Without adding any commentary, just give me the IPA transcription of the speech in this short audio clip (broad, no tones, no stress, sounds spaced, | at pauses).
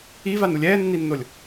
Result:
i v a n u lʲ ɛː nː i nː o lʲ